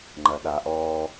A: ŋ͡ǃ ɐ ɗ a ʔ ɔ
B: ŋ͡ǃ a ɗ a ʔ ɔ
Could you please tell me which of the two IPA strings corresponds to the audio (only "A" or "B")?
A